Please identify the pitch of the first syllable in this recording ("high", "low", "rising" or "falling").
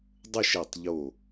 falling